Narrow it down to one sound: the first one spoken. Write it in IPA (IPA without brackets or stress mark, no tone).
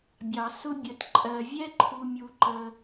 bʲ